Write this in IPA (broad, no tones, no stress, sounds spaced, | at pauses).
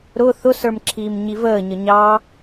ɾ ʊ θ ʊ s ə˞ m ǁʰ iː m ɲ i v əː ɲ ə ɲ ɑ